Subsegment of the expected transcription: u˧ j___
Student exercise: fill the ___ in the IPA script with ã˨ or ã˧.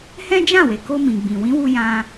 ã˧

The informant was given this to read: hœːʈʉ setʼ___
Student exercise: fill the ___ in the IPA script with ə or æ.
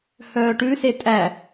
æ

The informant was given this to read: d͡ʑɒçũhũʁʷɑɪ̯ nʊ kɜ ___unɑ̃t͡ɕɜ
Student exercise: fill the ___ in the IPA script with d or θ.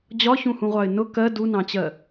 d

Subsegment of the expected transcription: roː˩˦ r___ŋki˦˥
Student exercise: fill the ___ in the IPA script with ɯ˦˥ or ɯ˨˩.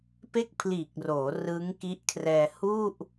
ɯ˦˥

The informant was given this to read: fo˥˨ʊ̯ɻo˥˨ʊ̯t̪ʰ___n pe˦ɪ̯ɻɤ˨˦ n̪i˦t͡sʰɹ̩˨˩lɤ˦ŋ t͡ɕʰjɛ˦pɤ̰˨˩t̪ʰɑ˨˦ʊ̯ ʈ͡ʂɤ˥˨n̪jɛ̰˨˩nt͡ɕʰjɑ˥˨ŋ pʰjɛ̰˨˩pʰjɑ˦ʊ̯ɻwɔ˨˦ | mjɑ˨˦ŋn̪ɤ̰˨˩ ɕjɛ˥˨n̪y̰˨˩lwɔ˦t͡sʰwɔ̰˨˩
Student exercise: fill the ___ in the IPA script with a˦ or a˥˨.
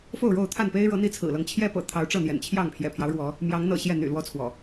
a˥˨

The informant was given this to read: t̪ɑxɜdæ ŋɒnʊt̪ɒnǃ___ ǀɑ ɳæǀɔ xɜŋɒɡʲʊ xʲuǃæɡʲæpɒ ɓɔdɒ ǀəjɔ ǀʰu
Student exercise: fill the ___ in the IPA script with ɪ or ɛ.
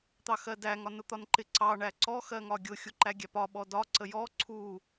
ɪ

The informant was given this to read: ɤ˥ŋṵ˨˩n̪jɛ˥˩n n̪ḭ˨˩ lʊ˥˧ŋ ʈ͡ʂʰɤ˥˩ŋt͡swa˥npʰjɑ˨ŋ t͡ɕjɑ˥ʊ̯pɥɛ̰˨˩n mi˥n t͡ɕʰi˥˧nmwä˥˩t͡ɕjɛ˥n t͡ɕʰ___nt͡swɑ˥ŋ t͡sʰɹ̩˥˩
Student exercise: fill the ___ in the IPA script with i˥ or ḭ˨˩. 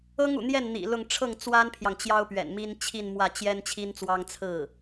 i˥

